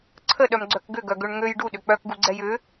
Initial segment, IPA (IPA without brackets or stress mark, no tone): ǀʰ